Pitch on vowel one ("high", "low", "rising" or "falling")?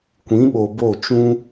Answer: rising